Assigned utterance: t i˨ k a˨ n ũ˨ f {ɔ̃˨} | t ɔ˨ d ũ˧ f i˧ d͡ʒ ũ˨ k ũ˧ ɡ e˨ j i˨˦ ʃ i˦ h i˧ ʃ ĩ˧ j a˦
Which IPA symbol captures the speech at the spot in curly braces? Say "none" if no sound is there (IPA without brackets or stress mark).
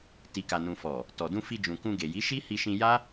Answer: ɔ˨